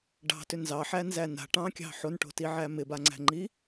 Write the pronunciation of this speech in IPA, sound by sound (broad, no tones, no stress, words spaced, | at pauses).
ɖɑ̤tʏ nzɑħænzæ na̤ʈɑ̃kʲɑ̤ ħonʈo̤tiʕæ mɪbaŋ͡ǀæ̤ŋ͡ǃi